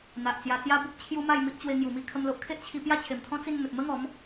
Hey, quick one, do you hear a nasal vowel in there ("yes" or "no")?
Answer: yes